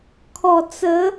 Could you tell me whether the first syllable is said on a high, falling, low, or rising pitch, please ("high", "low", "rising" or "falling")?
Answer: low